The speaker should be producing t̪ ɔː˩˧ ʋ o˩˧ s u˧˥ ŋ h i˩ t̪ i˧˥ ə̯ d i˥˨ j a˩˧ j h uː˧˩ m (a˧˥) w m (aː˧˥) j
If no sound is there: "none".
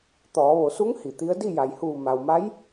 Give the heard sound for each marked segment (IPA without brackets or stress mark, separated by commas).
a˩, a˧˥